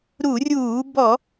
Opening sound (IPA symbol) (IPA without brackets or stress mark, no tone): ɾ